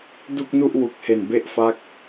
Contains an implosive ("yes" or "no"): no